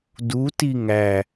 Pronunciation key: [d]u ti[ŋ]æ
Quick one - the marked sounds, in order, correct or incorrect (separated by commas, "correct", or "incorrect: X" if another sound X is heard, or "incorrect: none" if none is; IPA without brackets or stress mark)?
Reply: correct, correct